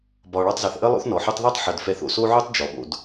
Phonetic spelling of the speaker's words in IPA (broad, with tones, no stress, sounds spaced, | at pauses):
b ɒ˨ ɭ ɑ˧ tˤ z ɑ˨ θ ʔ ə˦ lˠ o̰˦ θ n ɔ˨ ħ u˦ tˤ ð ɒ˦ tˤ ħ ə˨ d f ɛ˧ θ o̰˨ s o˦ ʕ u˦ tˤ d͡ʒ ɔ˨ ɓ o̰˧ d